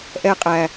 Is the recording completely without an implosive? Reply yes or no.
yes